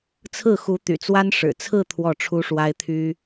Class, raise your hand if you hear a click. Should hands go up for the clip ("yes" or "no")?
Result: no